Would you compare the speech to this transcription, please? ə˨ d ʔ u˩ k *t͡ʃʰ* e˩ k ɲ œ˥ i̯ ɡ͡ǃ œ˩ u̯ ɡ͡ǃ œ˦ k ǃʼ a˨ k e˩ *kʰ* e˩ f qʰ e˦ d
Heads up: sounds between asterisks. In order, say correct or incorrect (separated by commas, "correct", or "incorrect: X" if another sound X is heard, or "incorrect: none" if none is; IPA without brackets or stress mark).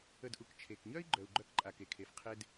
correct, correct